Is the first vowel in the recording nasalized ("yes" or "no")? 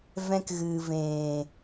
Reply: yes